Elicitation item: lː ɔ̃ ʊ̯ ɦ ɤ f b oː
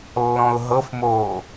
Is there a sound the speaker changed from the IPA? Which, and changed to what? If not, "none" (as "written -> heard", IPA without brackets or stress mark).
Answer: b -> m